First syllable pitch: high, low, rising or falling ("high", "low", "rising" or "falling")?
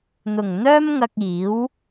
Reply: low